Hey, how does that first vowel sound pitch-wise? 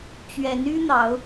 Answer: rising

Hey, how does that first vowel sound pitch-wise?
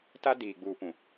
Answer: high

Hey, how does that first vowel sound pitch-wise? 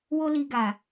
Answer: high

